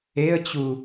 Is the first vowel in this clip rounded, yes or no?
no